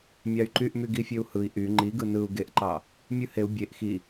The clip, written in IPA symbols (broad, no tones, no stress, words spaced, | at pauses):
mʲɑy̯ǃyʔmy ɡifʲøu̯hɯi̯ ʔy ŋ͡ǃiɡɯ nɯu̯ ɡeʔǃɑ | mʲɯheu̯ bʲeʔ xi